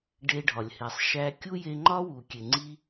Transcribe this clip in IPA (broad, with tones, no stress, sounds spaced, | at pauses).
ɖ e˧ ɖʱ ɒ˨ lʲ h e˨ sˤ ʃ æ˧ kʲ u˦ j e˧ ŋ͡ǃ ɒ˦ w u˨ kʲ e˨ ŋ͡ǀ i˧